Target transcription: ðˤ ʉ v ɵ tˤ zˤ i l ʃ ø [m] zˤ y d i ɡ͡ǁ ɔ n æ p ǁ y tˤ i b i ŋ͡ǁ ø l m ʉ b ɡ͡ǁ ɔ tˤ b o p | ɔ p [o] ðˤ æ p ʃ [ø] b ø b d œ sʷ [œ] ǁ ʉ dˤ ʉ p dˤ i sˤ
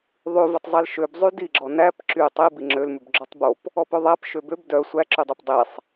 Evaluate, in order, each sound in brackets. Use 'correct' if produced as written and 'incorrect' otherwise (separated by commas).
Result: incorrect, incorrect, correct, incorrect